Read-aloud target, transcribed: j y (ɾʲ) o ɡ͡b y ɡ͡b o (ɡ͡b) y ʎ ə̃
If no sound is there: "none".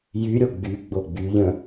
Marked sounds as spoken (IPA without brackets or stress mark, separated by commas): ɾʲ, ɡ͡b